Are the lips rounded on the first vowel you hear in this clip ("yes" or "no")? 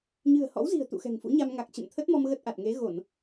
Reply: no